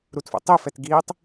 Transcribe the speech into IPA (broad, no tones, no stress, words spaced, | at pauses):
ɾutfo̰tˤifɛt ɡitˤ